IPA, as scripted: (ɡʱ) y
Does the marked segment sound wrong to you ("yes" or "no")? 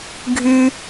no